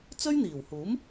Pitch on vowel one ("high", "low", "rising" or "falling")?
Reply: high